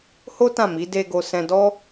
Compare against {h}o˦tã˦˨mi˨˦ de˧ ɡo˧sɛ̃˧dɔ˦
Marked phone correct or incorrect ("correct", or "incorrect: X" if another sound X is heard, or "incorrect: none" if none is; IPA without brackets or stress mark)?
correct